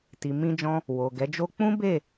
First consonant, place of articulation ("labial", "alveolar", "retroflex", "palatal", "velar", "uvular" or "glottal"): alveolar